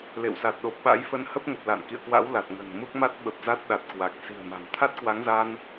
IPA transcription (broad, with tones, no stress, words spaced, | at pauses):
lḛ˧˨wsa˨˩t̚ɗo˨˩p̚ɓa̰˧˥j fə˧nhə˦˥p̚ŋə˨˩p̚ la̰˧˨nkḭ˧˨ə̯kwa̰˧˥w la˨˩t̚ŋə̤˨˩nmu˦˥k̚ ma˦˥t̚ɓə˨˩p̚ za˦˥t̚ɗa˨˩t̚kwa˨˩k̚ si̤˨˩ə̯ma̤˨˩m t̪ʰa˦˥t̚kwa˨˦ŋza˧n